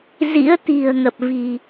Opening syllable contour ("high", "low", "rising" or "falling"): rising